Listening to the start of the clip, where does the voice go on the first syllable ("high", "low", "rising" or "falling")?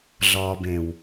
low